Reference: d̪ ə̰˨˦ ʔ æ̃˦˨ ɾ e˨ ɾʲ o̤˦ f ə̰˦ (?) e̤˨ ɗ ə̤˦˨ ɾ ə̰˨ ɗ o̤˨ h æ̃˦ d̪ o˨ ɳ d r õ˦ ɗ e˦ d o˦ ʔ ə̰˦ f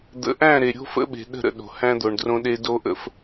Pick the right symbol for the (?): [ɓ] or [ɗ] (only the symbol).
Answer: ɓ